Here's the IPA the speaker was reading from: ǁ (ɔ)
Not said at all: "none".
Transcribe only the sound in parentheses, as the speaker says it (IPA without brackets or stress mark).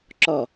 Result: ɔ